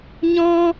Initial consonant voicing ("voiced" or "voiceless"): voiced